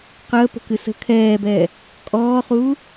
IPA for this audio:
q əː p ə̤ k ɨ s ə̤ kʰ ɛː b ɛː | kʼ ɔː χ uː

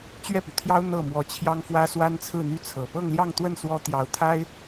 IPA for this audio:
t͡ɕ ɥ ɛ˥˩ p y˩ t̪ʰ j ɑ˥ ʊ̯ n̪ ɤ˥˩ m w ɔ˧˥ t͡ɕʰ j ɑ˥ ŋ f w ä˥ s w a˥ n t͡sʰ ɹ̩˥˧ n̪ y˥˩ t͡sʰ ɤ˨˩ p ɤ˥˧ ŋ l j ɑ˥˧ ŋ t̪ w ə˥˩ n s w ɔ˥ t̪ j ɑ˧˥ ʊ̯ t̪ʰ a˥ ɪ̯

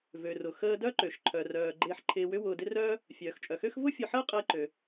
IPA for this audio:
v ø˩ r ʊ˩ x əː˧ d œ˥ ǃ ø˩ ʃ ǃʰ œ˩ r œː˩ ɡ͡ǃ ɪː˧ ħ ǃʰ ɪː˧ w ʏ˥ w ʊː˧ d ɪ˥ r œː˥ | fʲ œː˩ x t͡ʃʼ œ˩ x ø˥ x v ʊ˥ fʲ ʊ˧ ħ əː˥ qʼ ɪː˧ ǃ ø˩

